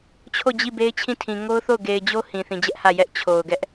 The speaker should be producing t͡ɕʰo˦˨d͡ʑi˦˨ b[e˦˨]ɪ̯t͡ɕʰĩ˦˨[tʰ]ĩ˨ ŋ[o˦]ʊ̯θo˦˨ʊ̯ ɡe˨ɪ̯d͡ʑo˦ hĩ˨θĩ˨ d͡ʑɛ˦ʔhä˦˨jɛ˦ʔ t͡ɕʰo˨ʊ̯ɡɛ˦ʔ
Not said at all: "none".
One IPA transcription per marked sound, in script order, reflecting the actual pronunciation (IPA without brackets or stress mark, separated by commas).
e˦, tʰ, o˦